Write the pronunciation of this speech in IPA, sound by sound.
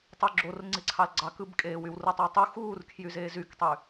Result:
tˤ u ɡ͡ǁ o r ŋ͡ǀ i ǀʰ ɑ l ɡ͡ǀ ɑ k ɯ b kʼ eː w y w r ɯ tˤ y w tˤ u x uː r kʰ j y z eː z y k tˤ y

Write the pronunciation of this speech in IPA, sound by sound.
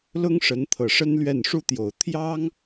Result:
l ʊ˥ ŋ ʂ ə˧˥ n t̪ʰ ɤ˨˩ ʂ ə˥ n l ɥ ɛ˥˩ n ʂ u˥ t̪ j o˨˩ ʊ̯ t̪ʰ j ɑ˥ ŋ

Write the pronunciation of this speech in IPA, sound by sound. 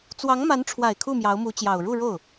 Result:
t͡s w ɑ˧˥ ŋ m a˧˥ n ʈ͡ʂʰ w a˨˩ ɪ̯ kʰ u˥˩ m j ɑ˧˥ ʊ̯ m u˧˥ t͡ɕ j ɑ˨˩ ʊ̯ ɻ u˥˧ ɻ o˥˩ ʊ̯

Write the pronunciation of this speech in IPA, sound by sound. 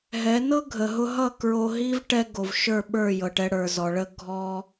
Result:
ɦ ɛ˨˦ n ɤ˦ ɡʱ ə˨ ɦ ʊ˧ ɦ ʌ˦˨ k ɹ o˧ ɦ i˦ v ʈ ɛ˦ ɡ o˨ v ʃ ə˞˦˨ ɓ ə˞˦˨ j ɤ˨ ʈ ɛ˧ ɽ ə˞˨ z ɔ˨ ɭ ə˧ ɡʱ ɔ˧

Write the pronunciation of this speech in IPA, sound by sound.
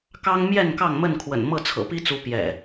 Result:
k ɑ˦ ŋ m j ɛ˥˨ n k ɑ˥˨ ŋ m ə˥˨ n kʰ w ə̰˨˩ n m ɤ˥˨ t͡sʰ ɤ̰˨˩ p i˦ t͡s u˨˦ p j ɛ̰˨˩

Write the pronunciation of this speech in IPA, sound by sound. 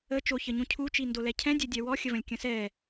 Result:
ə t͡ʃ o ç ə ɲ ũ cʰ u t͡ʃ i n d o l ɛ cʰ ɛ̃ dʲ ɛ dʲ ɛ w ɔ xʲ ə v ə̃ lʲ kʲ ə̃ s ɛ

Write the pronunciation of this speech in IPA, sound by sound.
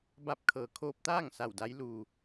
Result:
b a˧˥ p̚ kʰ ɤː˩˧ kʰ oː˧ p̚ t̪ aː˥˨ ŋ s a˧˩ w d a˧ j l u˩

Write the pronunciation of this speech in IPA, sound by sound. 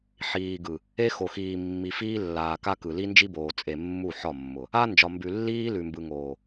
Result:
ħ iː˨ ɡ ɯ˨ | e˦ x o˨ x iː˨ mː i˨ f iː˦ lː aː˨ k a˦ k ɯ˨ l i˦ n d͡ʒ i˦ b oː˨ t͡sʼ e˨ mː u˦˨ ħ ɒ˦˨ mː ʊ˨ | a˦ n d͡ʒ ɒ˨ m b ʉ˨ lː iː˦ l ʉ˨ m b ɯ˨ ŋ oː˨

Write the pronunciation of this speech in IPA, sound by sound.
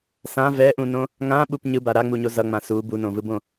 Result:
s ã v ɛ ʔ ũ n õ | ŋ ã ɓ u p ɲ ɯ b a ɾ a ŋ͡m u ɲ o z ʌ ŋ͡m ã s u b u n õ v ɯ b õ

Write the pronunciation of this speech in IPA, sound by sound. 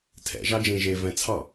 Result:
tʰ ɛ̰ ʒ ɑ d͡ʒ ẽ ʒ e v ɛ̃ t͡sʰ ɑ

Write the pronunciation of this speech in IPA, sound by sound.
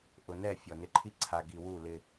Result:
ʔ ʊ˨ n ɛ˦˨ fʲ ɔ˨ n ɪ˨ ǃʰ i˦ ǀʰ a˨ ɡ i˨ w u˦˨ l ɪ˦

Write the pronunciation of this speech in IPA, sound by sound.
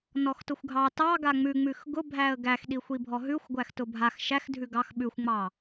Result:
n ɔ x t ʊ xʷ ɡʱ ɑ t ɑ ɡ a ŋ͡m ʉ ŋ͡m ʉ x ɡ ʊ bʱ æ ə̯ ɡ æ x ɗ i xʷ i bʱ ɔ ɦ ʉ xʷ ɡʷ æ x t ʊ bʱ a x ʃ æ x dʱ ʉ ɡ ɑ x ɓ ʉ xʷ ŋ͡m ɑ

